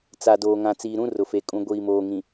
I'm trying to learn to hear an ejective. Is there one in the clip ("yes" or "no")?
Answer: yes